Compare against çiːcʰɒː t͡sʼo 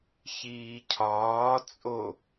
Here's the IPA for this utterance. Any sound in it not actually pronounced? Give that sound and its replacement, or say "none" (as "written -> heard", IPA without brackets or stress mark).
none